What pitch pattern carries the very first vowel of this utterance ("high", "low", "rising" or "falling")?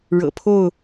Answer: low